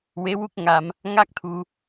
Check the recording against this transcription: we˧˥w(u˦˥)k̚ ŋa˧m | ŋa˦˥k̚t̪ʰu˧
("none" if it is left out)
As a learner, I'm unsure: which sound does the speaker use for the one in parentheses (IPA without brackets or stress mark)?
u˦˥